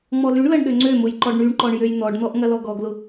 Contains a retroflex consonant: yes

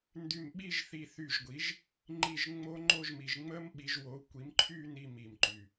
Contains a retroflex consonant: no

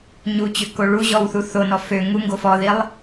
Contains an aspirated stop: no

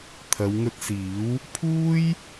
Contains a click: no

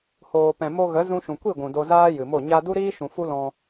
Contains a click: no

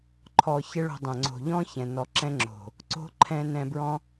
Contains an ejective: no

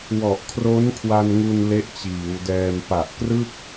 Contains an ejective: no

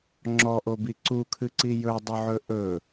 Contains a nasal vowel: no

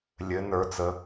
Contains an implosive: no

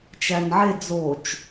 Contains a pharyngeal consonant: yes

